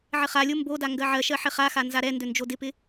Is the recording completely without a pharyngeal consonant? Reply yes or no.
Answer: no